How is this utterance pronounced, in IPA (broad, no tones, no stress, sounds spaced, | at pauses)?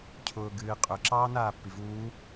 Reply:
cʰ ʊː ɡ ɨː qʼ ø ǁ ɑː n aː pː i v uː